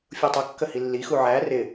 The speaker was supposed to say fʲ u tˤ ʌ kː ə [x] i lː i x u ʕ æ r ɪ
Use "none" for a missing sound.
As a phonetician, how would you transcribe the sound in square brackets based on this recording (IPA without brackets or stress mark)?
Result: h